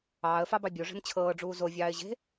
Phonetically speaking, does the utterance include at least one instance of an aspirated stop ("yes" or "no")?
yes